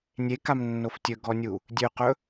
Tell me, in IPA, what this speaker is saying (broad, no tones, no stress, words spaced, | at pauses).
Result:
nʲekamnːof tʲɵɡɔnʲu | dʲøqɵ